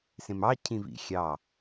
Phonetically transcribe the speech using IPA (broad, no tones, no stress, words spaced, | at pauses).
sẽmɑ cʰĩvḭ xʲɑ